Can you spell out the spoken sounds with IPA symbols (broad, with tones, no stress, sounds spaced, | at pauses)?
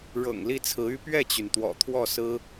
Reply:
ɻ ɤ̰˨˩ ŋ l i˥˩ t͡sʰ ɹ̩˧˥ y˥ p ɥ ɛ˥˩ t͡ɕ y˩ n t̪ w ɔ̰˨˩ t̪ʰ w ɔ˥˩ s ɹ̩˥